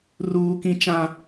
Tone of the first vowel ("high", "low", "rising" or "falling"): high